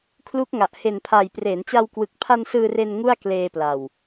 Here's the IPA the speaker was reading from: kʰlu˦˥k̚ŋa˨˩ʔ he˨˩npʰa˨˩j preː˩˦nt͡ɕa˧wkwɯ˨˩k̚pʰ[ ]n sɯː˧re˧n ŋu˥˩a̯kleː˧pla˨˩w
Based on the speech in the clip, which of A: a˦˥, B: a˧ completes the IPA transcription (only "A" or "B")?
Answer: B